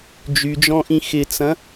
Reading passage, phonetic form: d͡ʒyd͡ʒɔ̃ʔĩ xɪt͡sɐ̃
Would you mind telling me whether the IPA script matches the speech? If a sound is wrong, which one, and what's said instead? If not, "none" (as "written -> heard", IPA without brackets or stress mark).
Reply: none